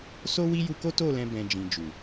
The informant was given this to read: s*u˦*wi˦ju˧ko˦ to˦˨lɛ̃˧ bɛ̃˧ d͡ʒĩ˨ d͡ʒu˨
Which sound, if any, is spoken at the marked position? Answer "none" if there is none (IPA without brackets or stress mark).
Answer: o˦